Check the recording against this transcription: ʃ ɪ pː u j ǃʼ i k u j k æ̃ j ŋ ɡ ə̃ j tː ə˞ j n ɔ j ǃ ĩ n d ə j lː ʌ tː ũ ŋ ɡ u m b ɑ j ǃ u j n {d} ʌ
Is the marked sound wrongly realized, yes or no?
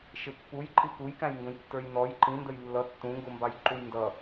no